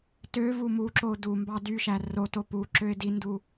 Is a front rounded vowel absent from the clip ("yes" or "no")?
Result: no